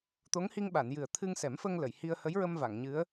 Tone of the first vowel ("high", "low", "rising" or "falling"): rising